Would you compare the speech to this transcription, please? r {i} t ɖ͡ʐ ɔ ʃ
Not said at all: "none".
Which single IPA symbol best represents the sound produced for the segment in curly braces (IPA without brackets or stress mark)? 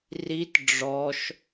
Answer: i